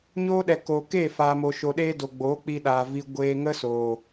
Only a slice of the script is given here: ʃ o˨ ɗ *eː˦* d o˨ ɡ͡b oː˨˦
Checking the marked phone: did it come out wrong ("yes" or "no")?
no